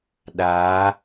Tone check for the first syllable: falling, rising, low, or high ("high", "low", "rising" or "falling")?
rising